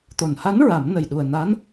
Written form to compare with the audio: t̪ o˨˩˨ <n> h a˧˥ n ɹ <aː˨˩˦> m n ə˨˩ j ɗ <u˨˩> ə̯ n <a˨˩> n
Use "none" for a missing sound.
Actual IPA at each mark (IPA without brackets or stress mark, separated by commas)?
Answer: n, a˨˩˦, u˨˩, a˧˥